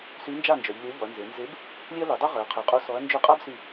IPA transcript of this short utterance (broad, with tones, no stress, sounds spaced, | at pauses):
s y˨˥ n d͡ʒ a˥˩ n d͡ʒ œ˩˧ ʎ lʲ ø˨˥ ʎ ɔ˩˧ ɐ̯ n z e˩˧ n z e˨˥ b | lʲ e˦ ɐ̯ l y˩˧ dˤ o˦ ʁ œ˩˧ ɐ̯ qʰ ø˩˧ qʼ o˨˥ s ɔ˨˥ ɐ̯ n d͡ʒ ø˥˩ qʼ a˦ b s y˧˩